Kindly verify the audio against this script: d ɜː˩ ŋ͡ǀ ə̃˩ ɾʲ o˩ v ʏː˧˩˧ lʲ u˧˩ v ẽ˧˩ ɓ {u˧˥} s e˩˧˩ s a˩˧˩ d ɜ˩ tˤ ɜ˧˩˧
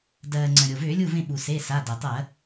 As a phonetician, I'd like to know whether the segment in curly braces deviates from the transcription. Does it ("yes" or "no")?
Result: yes